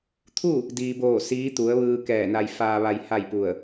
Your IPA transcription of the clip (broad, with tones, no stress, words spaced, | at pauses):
t̪ʰu˥˨ | diː˩boː˧˩ siː˧˥t̪u˩˧ə̯ʋɯː˧ kɛː˧˩na˧j faː˧ʋa˧j ha˥˨jpu˧˩ə̯